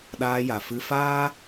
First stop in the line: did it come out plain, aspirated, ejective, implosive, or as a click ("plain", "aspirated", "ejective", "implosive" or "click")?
implosive